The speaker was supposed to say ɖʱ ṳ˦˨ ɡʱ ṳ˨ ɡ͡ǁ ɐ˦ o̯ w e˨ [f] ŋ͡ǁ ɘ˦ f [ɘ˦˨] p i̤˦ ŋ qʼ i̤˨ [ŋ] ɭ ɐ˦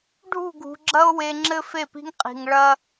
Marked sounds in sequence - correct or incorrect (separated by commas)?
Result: incorrect, incorrect, correct